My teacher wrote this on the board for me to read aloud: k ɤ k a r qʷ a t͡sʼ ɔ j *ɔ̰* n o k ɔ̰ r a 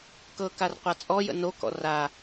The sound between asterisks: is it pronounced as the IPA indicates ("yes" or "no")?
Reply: no